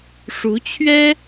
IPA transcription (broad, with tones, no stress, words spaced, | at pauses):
ʂu˧˥t͡ɕʰɥɛ˥